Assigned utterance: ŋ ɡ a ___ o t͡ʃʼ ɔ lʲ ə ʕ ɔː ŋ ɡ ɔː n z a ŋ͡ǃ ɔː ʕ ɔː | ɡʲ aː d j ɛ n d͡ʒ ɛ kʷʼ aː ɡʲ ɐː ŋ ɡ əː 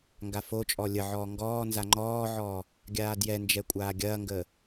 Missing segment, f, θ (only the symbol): f